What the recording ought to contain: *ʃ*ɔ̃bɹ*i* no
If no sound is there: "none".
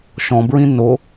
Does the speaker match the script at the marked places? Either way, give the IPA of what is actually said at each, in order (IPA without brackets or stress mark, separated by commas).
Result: ʃ, ĩ